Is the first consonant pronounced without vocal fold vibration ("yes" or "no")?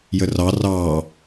no